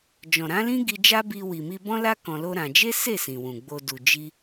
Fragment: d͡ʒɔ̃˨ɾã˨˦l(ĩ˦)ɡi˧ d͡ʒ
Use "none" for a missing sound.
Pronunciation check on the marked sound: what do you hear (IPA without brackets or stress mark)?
ĩ˦